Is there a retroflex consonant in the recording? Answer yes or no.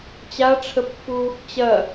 yes